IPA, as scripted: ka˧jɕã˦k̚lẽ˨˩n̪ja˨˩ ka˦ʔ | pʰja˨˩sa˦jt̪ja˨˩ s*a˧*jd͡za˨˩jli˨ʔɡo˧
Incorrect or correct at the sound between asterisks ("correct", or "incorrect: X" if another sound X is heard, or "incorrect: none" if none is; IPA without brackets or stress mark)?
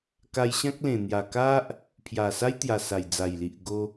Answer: incorrect: a˨˩